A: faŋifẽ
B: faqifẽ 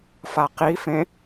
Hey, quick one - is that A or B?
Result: B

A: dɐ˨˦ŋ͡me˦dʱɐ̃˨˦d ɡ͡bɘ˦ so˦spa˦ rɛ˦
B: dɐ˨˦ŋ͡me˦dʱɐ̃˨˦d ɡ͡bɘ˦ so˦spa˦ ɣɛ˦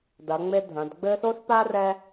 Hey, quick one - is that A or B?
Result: A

